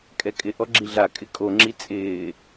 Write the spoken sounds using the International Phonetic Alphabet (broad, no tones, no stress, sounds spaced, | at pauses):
kʼ ɛ kʼ ɪ ʔ ɔ ɡ͡ǁ i ɮ a kʼ ɪ kʼ o ŋ͡ǁ i t͡sʼ ɪː